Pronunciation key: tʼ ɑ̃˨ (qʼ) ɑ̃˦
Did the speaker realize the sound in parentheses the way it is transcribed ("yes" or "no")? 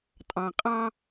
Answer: yes